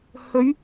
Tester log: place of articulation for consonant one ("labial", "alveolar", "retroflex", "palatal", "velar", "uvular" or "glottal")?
glottal